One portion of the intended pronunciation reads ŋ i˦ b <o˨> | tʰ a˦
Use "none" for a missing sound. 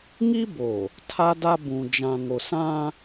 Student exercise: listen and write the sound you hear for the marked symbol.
o˨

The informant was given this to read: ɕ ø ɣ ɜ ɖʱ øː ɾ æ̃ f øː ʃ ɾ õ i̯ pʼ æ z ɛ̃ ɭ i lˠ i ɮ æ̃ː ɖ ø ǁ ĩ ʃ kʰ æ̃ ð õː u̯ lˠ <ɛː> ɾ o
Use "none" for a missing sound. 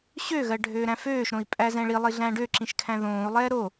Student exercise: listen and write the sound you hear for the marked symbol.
ɛː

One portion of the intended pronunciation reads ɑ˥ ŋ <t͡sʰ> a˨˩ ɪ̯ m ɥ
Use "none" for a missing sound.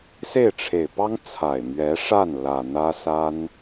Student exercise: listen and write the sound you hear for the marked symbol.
t͡sʰ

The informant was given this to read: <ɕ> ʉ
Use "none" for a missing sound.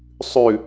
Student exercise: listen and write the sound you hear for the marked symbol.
sˤ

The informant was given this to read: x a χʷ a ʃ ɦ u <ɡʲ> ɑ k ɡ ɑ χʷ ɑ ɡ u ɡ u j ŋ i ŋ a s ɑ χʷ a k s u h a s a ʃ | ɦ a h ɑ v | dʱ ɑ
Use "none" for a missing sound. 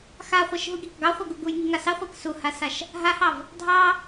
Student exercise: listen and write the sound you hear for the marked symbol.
ɡʲ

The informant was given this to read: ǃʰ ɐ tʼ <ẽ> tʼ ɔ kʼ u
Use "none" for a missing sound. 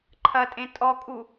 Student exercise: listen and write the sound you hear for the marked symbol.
ẽ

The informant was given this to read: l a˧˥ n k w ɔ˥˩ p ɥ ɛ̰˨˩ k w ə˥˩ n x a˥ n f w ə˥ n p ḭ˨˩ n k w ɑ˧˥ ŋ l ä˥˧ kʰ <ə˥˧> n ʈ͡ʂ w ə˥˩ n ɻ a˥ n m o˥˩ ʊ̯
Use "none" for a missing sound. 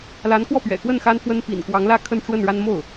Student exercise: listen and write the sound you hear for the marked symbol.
ə˥˧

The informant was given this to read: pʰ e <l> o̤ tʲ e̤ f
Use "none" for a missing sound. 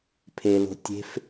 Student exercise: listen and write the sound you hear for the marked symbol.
l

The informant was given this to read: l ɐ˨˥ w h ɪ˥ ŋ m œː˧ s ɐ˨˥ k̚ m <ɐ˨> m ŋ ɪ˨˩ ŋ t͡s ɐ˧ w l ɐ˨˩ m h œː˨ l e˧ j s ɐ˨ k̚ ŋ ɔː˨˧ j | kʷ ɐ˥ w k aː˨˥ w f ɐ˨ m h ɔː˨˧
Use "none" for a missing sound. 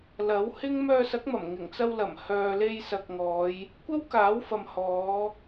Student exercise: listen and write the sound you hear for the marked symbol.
ɐ˨˩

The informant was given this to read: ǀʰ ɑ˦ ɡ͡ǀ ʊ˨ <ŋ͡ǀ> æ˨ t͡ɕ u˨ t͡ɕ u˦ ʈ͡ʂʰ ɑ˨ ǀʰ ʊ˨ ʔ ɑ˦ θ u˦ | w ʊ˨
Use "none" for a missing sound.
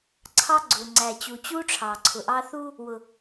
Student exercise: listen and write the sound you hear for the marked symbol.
ŋ͡ǀ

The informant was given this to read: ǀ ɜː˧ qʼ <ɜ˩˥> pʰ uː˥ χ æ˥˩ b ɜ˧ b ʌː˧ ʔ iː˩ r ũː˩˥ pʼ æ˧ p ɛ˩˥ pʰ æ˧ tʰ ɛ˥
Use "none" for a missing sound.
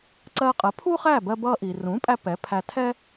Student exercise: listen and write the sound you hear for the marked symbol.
ɜ˩˥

